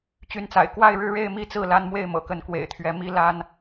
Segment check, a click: absent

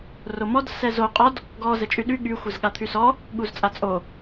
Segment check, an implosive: present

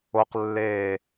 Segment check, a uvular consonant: present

